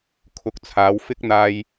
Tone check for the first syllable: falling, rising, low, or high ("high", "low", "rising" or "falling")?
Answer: rising